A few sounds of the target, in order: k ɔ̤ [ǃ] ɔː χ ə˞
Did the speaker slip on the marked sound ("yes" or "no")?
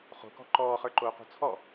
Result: no